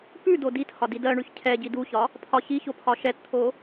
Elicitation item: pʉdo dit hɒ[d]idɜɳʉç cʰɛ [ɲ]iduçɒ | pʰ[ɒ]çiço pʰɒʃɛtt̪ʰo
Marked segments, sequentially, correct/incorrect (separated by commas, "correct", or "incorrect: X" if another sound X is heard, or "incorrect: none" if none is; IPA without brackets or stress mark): correct, incorrect: ɟ, correct